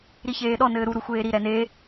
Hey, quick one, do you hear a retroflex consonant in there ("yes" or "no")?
no